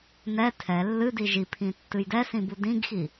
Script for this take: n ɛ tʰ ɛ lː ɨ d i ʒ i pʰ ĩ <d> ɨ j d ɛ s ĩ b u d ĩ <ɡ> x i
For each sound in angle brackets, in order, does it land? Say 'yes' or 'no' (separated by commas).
no, yes